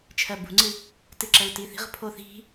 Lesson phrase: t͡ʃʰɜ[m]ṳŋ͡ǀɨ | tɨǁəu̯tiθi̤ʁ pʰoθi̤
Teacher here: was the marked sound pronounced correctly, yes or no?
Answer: no